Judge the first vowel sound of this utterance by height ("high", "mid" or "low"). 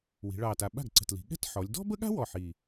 high